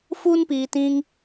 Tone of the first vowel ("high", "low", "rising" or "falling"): high